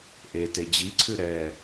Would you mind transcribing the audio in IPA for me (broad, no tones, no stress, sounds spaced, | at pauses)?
ʔ e t e d͡ʑ i ǀʰ ʉ ɾ ɛ